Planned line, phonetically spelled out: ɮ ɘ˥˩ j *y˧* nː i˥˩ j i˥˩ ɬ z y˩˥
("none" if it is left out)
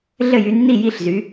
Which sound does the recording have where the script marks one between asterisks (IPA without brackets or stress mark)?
y˧